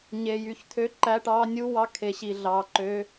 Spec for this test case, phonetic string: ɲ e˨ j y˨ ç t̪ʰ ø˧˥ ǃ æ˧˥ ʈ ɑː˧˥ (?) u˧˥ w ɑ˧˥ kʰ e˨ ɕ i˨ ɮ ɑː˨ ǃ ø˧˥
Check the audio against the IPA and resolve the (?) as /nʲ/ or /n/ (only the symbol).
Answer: nʲ